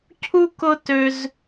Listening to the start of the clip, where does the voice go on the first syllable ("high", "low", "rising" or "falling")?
high